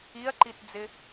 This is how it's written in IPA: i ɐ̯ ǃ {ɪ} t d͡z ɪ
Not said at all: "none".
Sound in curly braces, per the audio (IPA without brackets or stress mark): i